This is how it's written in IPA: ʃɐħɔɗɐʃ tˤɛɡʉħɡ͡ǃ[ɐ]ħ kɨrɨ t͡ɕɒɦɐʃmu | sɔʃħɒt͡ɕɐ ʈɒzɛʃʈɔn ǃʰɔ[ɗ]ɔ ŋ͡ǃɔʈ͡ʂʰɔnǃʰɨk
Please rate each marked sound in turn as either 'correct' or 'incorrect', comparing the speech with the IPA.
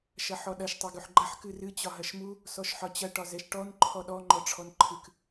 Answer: correct, correct

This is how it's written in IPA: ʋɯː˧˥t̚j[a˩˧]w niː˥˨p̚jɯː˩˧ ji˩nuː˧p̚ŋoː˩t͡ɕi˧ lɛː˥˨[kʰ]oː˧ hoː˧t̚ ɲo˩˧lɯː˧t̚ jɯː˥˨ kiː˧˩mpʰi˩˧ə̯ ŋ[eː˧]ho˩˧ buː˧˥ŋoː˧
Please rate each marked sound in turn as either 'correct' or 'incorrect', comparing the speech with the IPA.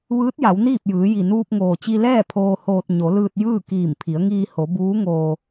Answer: correct, incorrect, incorrect

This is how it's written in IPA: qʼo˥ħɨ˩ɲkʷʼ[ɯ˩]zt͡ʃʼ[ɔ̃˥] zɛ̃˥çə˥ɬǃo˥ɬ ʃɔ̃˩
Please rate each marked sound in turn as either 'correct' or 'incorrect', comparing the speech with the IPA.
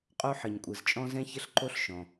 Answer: correct, correct

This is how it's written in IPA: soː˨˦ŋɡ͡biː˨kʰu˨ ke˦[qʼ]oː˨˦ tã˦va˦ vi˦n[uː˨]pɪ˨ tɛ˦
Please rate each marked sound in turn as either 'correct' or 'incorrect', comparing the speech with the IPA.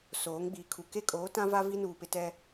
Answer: incorrect, correct

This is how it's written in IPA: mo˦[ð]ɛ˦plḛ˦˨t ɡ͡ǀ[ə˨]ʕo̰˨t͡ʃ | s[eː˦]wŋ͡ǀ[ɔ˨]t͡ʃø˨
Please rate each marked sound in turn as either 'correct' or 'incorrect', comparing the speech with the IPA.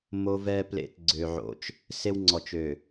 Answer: incorrect, incorrect, incorrect, correct

